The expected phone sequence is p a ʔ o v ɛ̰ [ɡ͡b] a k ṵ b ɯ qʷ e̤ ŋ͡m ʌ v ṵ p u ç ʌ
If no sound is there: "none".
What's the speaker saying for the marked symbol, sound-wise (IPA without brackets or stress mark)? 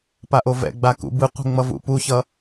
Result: ɡ͡b